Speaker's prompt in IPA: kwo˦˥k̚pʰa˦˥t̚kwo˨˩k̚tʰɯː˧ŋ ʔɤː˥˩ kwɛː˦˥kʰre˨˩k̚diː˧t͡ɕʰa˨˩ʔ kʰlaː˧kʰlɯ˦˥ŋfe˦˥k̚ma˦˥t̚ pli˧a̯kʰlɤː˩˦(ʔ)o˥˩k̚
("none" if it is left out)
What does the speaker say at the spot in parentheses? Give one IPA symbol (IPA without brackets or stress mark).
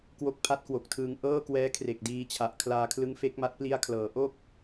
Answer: ʔ